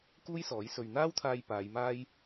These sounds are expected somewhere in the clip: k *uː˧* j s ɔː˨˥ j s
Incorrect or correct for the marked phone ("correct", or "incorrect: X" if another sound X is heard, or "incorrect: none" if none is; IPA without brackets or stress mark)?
incorrect: uː˥